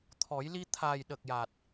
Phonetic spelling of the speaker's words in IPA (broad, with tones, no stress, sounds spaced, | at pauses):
t̪ʰ ɔ˨˩˦ j l i˧ t̪ʰ a˨˩ j ɗ ə˨˩ k̚ j a˨˩ t̚